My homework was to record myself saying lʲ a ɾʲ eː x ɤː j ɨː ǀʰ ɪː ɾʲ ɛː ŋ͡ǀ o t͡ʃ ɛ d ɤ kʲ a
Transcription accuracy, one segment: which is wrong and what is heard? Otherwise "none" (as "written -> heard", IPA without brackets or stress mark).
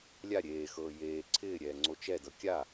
ɨː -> eː